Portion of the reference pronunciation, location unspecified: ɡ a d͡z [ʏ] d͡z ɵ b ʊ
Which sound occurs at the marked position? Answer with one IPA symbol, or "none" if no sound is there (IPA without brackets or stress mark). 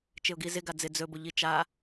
ɪ